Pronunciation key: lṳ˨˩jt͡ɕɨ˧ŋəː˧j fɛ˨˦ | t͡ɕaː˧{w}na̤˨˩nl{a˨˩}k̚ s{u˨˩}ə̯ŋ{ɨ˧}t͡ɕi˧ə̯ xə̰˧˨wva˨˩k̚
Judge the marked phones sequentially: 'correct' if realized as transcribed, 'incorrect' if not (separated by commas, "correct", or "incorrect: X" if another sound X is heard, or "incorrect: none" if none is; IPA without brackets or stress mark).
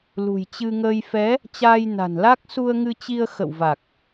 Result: incorrect: j, incorrect: a˦˥, incorrect: u˧, correct